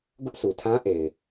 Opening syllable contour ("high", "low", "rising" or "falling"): high